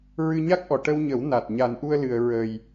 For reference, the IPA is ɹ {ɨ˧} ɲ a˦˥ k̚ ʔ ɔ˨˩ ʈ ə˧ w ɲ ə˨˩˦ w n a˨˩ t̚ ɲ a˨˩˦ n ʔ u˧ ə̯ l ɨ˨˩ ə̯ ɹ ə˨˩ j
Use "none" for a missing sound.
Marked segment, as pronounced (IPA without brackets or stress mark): ɨ˧